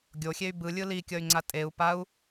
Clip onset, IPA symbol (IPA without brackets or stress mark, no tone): ɡʲ